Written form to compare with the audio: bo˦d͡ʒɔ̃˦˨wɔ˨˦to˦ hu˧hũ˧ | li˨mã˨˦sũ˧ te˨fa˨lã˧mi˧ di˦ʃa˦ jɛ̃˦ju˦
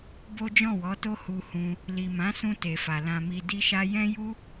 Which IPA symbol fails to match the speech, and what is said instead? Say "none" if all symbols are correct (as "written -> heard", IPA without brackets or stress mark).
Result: none